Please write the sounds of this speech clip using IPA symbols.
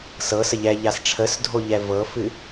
s ɤ s ə ʎ ɛ ʎ a s ʈ͡ʂʰ ə s dʱ o ʎ ɛ v ɤ f ɨ

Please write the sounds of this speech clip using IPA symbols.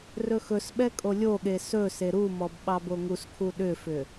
r ɵ x ɵ s ɓ ɛ kʼ o lʲ o ɠ e s ɵ s e ɾ u m ɔ b ɓ ɑ b o ŋ u s kʰ u ɗ ʏ f ʏ

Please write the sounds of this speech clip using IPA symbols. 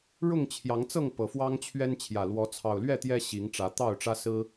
ɻ ʊ˥˨ ŋ t͡ɕʰ j ɑ˨˦ ŋ t͡s ɤ˥˨ ŋ p ɤ˨˩ f w ɑ˦ ŋ t͡ɕʰ ɥ ɛ˦ n t͡ɕʰ j ä˨˩ l w ɔ˨˦ t͡sʰ ɑ˨˩ ʊ̯ l ɥ ɛ˥˨ t̪ j ɛ˦ ɕ i˨˦ ŋ ʈ͡ʂ ä˨˦ t̪ ɑ˥˨ ʊ̯ ʈ͡ʂ ä˦ s ɹ̩˦

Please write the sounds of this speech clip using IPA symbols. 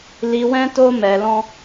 l i˧ w ɛ̃˦ t o˦ m ɛ˧ l ɔ̃˦

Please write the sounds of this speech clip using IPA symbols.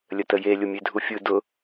lʲ ə t ə j e lʲ ʊ mʲ e dʱ u fʲ ɯ d ʊ

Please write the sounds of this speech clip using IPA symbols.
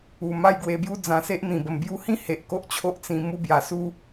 u˨˩ m a˥˧ j ɡ w e˧ b j u˦ d͡z ã˧ s e˦ ʔ n̪ ĩ˨˩ b ə˨˩ m b j u˧ h ĩ˦ h e˨ ʔ k o˦ ʔ t͡ɕʰ o˦ ʔ t͡s ĩ˧ m u˧ b j a˨˩ s u˧

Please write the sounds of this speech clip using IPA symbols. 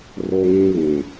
r o˦ ŋ ĩ˦ β ĩ˨

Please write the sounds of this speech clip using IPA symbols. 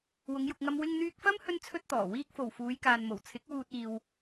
w ʊ˨˧ ŋ j ʊ˨ k̚ ŋ ɐ˧ m w ɪ˧ ŋ n̪ yː˧ k̚ f ɐ˥ m h ɵ˥ n t͡sʰ ɵ˥ t̚ t̪ ɔː˨˩ w iː˧ k̚ f o˨˩ w f uː˨˧ j k aː˨ n m o˨˩ w t͡sʰ ɪ˨˥ k̚ w uː˧ t̚ iː˨ w

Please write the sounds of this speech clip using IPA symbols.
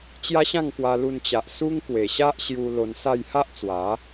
t͡ɕ j a˦ ɕ ã˥˧ ŋ k w a˧ l u˧ n t͡ɕ a˨ ʔ s u˦ ŋ k w e˨˩ ɕ a˦ ʔ ɕ j u˧ l o˧ n s a˥˧ j h a˦ ʔ t͡s w a˨˦

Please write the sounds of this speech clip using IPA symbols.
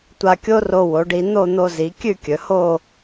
tʷ a˧ kʲ o˥ r o˧ w o˩˧ ɖ i˧ n̪ o˥˧ n̪ o˧ z i˩˧ kʲ ʉ˥˧ kʲ ɵ˩˧ h o˥˧

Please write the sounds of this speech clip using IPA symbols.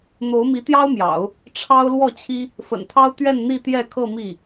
n̪ o˧˥ ʊ̯ m i˧˥ t̪ j ɑ˥ ʊ̯ m j ɑ̰˨˩˦ ʊ̯ | ʈ͡ʂʰ ɑ˥ ʊ̯ l w ɔ˥˩ t͡ɕʰ i˥ | f ə̰˨˩ n t̪ʰ ɑ˥ ʊ̯ t̪ ɥ ɛ˥˧ n n̪ i˥˧ t̪ j ɛ˥˧ kʰ ɤ˥˧ m i˥˩

